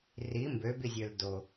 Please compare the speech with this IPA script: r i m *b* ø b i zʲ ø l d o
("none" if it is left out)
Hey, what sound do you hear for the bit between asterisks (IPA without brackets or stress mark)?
b